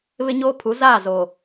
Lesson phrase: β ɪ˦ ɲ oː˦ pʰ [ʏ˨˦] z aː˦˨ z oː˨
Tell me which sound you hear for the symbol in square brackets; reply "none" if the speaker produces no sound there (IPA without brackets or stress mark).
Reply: u˨˦